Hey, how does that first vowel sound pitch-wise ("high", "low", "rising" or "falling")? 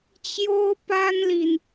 high